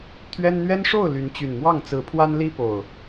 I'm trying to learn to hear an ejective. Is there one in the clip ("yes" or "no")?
no